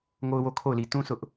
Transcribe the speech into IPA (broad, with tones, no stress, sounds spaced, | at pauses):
ŋ o˦ ʊ̯ w o˦ kʰ o˦˨ ʊ̯ l i˨ t ũ˦ s ʊ˦ ʔ